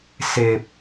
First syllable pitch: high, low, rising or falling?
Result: low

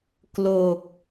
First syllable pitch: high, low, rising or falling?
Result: low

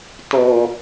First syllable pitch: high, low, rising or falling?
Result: low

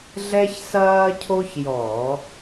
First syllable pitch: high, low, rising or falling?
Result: high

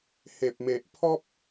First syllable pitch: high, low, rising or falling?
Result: low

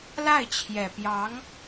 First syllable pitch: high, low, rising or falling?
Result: falling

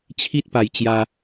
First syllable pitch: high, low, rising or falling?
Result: high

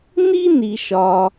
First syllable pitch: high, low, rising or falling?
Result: high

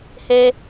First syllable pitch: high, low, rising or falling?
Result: high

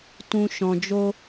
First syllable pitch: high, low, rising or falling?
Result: low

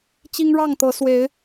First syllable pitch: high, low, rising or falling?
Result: high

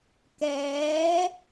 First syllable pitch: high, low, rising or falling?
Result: rising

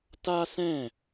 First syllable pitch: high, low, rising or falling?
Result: high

